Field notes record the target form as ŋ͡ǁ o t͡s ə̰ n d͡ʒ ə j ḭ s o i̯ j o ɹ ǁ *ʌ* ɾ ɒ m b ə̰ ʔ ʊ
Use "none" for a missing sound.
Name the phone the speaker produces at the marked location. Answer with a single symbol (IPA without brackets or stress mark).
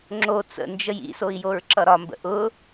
ʌ